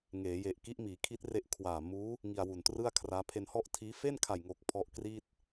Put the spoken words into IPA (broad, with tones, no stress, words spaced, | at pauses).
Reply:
ŋeː˩˦je˨˩ʔki˦˥ʔ miː˩˦kʰi˦˥t̚re˦˥ʔ kʰwaː˨˩ muː˦˥ | ŋi˧a̯wu˨˩ntrɯ˥˩a̯kʰraː˦˥ pʰe˧nhɔ˥˩ʔtʰiː˦˥ fe˥˩nkʰa˨˩jŋoː˨˩k̚ pʰɔ˦˥ʔkriː˥˩t̚